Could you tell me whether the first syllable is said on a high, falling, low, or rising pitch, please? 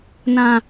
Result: low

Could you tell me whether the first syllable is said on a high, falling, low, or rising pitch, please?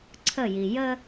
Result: falling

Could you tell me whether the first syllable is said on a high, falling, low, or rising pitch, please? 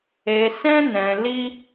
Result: low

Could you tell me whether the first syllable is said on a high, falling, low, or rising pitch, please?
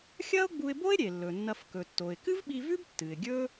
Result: high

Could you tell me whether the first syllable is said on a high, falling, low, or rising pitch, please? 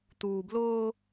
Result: low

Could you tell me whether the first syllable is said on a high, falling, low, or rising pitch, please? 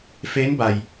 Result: rising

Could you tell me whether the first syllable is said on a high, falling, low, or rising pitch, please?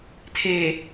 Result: low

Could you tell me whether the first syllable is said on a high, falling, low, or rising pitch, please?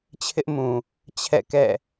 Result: high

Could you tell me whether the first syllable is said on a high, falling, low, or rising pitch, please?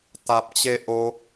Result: high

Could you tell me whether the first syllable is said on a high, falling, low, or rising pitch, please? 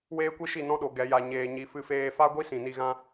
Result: high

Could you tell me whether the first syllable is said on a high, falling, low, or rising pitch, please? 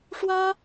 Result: high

